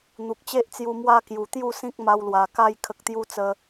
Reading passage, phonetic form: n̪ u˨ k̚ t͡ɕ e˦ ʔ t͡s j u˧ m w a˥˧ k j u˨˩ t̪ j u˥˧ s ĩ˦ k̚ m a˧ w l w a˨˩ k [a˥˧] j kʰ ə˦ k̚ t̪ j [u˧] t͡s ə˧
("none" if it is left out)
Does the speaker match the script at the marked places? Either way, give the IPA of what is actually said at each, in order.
a˥˧, u˦

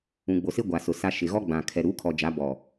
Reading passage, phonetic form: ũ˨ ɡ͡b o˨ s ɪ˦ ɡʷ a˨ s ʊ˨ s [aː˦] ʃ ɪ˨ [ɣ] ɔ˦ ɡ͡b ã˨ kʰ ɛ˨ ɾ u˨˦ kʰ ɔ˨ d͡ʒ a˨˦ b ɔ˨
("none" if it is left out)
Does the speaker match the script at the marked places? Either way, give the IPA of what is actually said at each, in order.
a˦, ɣ

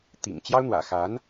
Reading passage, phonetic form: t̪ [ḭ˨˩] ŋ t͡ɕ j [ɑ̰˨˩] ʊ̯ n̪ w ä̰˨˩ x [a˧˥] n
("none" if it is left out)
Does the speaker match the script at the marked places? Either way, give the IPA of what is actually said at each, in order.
ḭ˨˩, ɑ˥, a˧˥

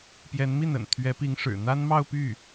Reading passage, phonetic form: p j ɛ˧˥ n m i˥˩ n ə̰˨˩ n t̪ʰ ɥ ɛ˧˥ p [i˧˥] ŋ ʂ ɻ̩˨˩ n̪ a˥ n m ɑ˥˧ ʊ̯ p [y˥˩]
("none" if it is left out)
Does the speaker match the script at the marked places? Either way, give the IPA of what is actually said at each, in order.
i˧˥, y˥˩

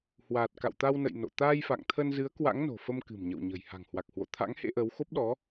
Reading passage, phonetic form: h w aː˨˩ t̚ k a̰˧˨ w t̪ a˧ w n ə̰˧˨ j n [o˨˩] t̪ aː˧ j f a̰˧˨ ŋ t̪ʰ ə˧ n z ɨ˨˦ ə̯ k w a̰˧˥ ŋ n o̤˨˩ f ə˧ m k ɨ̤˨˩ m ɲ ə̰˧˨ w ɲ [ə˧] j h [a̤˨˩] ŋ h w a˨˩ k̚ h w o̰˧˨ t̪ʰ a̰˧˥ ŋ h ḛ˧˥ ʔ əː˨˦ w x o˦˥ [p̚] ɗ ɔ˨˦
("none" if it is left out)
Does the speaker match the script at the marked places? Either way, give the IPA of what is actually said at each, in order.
o̰˧˨, ə̤˨˩, a̤˨˩, p̚

